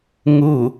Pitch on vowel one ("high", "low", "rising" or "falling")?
falling